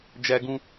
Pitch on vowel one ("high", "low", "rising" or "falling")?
high